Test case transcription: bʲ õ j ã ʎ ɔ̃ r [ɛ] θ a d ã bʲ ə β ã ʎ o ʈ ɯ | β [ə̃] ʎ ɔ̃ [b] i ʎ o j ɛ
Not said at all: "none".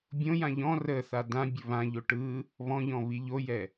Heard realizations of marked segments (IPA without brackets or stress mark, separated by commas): ə, ɔ̃, β